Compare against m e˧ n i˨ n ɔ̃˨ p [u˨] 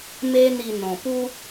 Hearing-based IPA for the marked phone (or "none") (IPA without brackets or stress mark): u˦